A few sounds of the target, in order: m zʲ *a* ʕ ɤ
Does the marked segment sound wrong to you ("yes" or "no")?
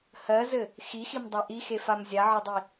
no